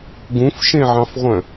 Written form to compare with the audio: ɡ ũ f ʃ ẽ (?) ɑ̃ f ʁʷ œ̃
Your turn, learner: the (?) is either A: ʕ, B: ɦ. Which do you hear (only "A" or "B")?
A